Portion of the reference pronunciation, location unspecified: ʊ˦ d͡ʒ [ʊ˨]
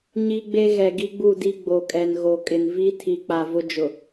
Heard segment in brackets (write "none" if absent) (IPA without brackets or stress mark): ʊ˨